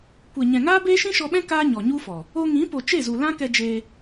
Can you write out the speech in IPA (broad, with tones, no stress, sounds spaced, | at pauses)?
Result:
kʷ e˨ ɲ ɛ̃˨ ŋ aː˦ b eː˦ ʃ ĩ˦ ʃ ɔ˧ ɓ ɛ̃˦ k aː˦ ɲ ɔ˨ ɲ u˦ f ɔ˨ | o˧ ŋ ĩ˨˦ p o˨ t͡ʃ e˦˨ z u˨ l ã˦ k ɛ˧ d͡ʒ eː˧